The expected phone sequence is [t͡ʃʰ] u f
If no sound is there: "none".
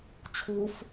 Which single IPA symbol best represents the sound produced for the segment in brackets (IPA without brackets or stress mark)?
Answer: t͡ʃʰ